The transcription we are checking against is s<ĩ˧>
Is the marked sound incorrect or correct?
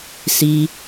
incorrect